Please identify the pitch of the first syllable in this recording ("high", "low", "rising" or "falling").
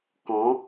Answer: rising